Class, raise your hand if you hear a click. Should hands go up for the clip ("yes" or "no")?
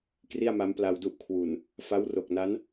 no